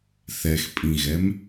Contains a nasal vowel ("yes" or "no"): yes